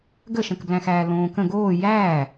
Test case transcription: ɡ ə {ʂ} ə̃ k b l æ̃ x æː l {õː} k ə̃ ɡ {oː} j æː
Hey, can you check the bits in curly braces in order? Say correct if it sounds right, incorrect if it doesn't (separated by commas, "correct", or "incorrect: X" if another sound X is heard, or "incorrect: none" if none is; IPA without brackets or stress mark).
incorrect: ʃ, correct, correct